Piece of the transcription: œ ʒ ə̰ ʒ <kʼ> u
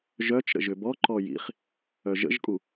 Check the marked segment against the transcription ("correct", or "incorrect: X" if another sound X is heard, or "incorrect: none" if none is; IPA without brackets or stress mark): correct